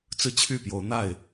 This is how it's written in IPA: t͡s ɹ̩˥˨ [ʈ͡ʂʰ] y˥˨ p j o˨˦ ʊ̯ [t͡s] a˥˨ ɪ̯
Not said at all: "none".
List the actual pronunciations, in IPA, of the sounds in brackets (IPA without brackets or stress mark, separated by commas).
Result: t͡ɕʰ, n̪